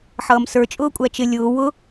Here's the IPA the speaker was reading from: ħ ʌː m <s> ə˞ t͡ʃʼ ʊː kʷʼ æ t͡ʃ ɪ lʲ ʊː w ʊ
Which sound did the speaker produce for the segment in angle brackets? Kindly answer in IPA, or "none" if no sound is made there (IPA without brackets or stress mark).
s